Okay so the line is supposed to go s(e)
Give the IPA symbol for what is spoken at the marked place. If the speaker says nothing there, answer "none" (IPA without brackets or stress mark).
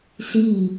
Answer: i